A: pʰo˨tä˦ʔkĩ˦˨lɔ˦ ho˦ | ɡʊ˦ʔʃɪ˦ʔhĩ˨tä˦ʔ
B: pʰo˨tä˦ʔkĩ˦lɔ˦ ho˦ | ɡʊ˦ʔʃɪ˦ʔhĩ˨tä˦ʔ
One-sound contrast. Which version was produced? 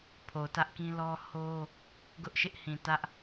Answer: B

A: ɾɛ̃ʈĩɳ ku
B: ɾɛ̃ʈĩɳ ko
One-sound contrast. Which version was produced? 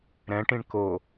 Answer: B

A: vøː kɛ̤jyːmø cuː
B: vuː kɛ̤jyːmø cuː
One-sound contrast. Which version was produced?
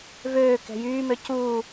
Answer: A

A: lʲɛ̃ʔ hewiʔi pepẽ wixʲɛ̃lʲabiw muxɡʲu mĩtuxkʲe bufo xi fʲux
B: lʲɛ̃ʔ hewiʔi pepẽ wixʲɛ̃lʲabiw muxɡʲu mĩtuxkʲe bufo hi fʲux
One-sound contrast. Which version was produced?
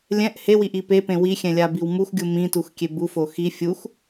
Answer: A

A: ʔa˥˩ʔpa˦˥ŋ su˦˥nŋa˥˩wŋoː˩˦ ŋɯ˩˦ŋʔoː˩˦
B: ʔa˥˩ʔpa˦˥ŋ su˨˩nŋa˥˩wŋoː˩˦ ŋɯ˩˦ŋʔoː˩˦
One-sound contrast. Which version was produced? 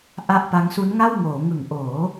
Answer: A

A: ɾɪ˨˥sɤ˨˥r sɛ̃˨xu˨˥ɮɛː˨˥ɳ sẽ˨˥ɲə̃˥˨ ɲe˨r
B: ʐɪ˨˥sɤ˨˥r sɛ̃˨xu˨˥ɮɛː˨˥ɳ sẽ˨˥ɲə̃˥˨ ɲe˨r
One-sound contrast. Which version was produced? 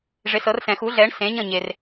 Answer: B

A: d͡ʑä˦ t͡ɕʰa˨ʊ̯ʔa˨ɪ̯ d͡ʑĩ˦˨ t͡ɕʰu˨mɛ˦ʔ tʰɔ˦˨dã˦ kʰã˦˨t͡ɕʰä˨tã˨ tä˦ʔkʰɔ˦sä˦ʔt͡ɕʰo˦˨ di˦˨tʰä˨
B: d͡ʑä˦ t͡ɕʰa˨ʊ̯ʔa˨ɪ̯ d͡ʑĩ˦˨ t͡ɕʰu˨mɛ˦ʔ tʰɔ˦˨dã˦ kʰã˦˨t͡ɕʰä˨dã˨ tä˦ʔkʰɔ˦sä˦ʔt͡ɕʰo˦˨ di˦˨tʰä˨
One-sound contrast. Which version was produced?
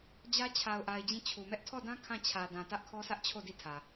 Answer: B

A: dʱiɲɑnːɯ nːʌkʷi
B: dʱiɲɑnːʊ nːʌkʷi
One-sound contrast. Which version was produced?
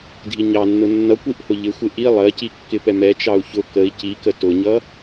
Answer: B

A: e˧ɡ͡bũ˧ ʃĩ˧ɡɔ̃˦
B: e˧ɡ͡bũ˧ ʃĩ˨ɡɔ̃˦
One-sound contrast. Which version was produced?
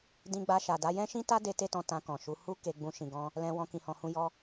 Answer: A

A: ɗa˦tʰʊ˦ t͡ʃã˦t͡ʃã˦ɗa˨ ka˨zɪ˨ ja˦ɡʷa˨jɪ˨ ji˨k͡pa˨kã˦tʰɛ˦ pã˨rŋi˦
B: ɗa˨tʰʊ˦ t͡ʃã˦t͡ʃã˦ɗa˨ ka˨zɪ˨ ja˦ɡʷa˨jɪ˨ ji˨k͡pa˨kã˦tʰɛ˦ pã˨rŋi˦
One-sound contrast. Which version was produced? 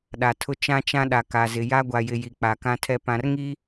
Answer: B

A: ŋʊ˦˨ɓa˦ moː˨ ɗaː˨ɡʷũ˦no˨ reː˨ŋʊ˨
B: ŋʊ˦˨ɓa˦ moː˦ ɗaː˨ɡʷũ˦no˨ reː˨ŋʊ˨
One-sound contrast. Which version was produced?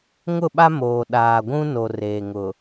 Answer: A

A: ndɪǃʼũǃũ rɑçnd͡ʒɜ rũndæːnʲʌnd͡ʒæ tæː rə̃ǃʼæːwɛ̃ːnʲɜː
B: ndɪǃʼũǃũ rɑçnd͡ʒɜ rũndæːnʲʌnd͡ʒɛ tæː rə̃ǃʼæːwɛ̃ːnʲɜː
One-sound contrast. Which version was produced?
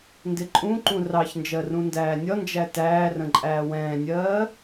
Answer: A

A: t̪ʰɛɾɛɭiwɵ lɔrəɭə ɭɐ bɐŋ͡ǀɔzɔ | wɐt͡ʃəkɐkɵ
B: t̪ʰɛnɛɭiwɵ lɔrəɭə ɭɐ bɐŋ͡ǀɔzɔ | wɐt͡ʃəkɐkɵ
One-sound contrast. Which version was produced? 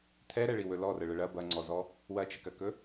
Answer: A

